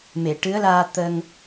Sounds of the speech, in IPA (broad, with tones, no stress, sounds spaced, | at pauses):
m e˨˩˨ ʈ ɨ˧˥ ə̯ l aː˧ t̪ əː˧ ŋ